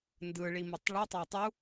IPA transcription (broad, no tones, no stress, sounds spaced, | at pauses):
n d ɯ ɭ i m ɯ tˤ ɭ y tˤ æ tˤ u